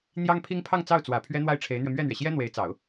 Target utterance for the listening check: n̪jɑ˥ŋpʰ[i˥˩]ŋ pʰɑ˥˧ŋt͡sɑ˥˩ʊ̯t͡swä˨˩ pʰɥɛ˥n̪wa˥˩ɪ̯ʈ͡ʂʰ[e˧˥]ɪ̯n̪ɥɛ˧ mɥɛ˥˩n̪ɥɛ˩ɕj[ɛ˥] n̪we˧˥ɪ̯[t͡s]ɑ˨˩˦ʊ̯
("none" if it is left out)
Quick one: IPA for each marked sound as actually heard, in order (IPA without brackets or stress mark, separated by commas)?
i˥, e˧˥, ɛ˥, t͡s